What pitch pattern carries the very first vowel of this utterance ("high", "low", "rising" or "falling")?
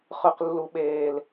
low